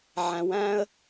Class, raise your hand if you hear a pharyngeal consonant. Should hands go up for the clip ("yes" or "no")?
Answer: yes